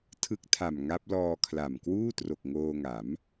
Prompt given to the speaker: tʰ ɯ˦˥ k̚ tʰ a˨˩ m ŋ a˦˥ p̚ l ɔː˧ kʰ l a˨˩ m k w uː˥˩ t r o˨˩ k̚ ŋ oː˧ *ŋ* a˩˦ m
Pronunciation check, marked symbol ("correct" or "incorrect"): correct